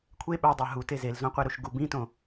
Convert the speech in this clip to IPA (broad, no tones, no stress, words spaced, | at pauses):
kʷʰe ɓædˤæ ɦute zelzõqʷeɾuʃ ɡub ĩtõ